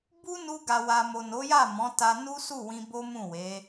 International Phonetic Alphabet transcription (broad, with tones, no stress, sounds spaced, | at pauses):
b u˦ n u˧ ɡ a˨ w a˨ m o˨ n o˨˦ j a˦˨ m ɔ̃˨˦ t a˧ n u˦ s u˦˨ w ĩ˧ b o˦ m ũ˦˨ w e˨˦